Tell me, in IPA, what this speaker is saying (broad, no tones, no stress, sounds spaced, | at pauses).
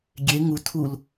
ɡʲ e ŋ u tʰ u l